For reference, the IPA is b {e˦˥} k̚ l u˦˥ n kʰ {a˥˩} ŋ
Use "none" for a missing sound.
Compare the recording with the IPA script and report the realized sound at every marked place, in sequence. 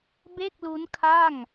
e˥˩, a˥˩

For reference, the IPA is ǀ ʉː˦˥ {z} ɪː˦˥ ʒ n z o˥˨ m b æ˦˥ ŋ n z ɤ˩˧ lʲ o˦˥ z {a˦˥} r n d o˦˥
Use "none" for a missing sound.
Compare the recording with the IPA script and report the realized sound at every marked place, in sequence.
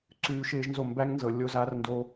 ʃ, a˦˥

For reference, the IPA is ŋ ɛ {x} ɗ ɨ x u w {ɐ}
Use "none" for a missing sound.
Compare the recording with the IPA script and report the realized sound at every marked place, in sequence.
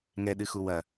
none, ɐ

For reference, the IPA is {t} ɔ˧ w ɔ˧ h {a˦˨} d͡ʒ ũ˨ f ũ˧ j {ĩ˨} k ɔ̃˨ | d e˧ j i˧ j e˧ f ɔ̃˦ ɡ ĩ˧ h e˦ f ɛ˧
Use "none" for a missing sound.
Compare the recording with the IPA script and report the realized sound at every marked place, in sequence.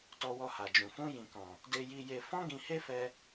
t, a˨, ĩ˨

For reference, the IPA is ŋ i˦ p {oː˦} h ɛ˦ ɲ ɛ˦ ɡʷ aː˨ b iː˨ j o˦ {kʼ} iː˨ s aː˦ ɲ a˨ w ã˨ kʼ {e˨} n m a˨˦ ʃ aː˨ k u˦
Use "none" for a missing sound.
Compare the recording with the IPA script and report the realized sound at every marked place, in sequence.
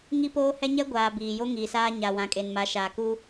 oː˦, ŋ, e˨

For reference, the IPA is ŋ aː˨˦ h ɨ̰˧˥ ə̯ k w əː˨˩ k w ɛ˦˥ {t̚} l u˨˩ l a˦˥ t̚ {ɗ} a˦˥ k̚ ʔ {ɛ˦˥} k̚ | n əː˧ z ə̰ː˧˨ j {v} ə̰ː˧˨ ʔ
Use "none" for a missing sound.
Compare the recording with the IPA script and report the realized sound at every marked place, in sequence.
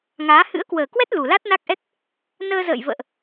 t̚, n, ɛ˦˥, v

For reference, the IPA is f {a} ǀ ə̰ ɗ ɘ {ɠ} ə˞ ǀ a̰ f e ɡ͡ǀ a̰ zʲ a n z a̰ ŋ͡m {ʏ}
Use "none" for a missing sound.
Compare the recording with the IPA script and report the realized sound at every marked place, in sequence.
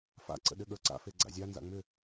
a̰, ɠ, ʏ

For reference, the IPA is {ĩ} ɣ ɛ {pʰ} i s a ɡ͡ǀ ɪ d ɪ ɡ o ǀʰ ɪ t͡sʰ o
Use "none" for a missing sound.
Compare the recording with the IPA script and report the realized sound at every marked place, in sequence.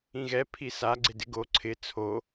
ĩ, pʰ

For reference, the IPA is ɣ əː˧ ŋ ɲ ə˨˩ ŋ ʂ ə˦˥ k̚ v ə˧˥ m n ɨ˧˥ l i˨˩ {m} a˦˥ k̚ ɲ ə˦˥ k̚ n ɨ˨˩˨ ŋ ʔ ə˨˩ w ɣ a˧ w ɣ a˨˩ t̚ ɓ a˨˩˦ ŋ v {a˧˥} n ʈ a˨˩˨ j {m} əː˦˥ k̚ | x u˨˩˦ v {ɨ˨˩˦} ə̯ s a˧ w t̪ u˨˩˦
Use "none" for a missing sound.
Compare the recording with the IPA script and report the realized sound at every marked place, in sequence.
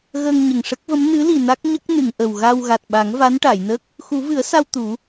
n, a˧˥, n, ɨ˨˩˦

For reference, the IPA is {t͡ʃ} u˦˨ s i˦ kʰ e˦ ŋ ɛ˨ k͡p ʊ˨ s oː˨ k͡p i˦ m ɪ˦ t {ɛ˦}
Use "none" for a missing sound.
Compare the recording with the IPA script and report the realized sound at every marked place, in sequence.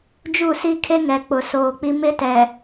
d͡ʒ, ɛ˨

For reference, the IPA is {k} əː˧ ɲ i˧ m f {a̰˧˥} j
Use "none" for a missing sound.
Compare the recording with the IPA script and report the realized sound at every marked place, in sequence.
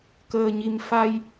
k, a˧

